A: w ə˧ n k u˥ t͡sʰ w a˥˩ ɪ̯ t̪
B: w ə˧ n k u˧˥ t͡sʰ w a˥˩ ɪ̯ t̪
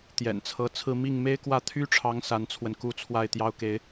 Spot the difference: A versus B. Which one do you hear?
A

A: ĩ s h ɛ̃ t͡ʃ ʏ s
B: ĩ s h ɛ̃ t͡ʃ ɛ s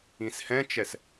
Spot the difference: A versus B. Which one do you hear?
B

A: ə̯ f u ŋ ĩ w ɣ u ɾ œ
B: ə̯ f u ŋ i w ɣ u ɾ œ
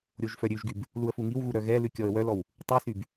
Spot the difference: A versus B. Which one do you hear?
B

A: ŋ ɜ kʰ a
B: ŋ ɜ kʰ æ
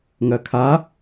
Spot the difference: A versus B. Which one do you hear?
A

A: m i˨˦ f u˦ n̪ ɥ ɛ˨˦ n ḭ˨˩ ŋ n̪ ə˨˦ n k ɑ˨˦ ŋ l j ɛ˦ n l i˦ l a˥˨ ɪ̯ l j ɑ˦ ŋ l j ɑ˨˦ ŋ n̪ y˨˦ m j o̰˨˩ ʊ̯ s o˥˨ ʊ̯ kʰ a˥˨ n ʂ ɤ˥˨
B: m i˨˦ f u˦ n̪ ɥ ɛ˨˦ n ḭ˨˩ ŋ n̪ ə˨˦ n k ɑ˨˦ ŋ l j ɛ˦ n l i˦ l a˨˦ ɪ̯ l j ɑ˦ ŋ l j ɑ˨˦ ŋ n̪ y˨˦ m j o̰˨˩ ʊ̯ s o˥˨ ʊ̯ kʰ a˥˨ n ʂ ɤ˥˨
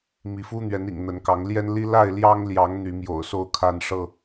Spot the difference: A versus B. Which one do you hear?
A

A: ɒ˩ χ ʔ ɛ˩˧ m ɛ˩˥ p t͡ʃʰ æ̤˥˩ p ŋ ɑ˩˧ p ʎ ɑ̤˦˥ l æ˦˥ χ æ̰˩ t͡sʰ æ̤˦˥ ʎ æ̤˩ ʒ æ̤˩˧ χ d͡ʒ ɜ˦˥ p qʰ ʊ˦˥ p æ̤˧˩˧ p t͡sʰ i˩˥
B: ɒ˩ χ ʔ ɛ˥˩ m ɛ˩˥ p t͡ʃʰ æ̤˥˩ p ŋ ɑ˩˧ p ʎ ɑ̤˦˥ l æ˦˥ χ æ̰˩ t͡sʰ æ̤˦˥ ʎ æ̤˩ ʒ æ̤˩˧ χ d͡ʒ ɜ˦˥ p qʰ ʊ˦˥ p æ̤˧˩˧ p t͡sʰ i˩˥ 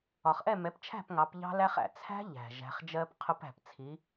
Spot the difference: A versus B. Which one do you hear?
B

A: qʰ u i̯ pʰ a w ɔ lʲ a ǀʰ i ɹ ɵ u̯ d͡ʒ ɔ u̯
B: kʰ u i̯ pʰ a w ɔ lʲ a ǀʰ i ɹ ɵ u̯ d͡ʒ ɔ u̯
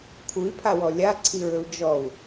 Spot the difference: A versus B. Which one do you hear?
B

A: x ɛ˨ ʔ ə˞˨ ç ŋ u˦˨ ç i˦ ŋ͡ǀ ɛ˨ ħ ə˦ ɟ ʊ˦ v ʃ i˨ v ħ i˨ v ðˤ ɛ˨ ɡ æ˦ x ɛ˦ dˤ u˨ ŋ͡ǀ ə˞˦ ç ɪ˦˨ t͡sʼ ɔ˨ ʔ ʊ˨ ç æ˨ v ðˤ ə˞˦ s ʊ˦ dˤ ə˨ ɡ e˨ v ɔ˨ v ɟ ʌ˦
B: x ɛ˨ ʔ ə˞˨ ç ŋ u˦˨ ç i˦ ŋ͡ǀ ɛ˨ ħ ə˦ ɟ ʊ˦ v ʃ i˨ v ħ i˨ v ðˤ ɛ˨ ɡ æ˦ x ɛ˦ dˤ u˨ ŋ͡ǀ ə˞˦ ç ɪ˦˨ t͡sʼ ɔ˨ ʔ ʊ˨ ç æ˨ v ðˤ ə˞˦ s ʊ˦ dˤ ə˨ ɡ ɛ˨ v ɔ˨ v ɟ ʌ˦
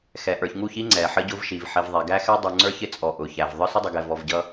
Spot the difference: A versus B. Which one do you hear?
B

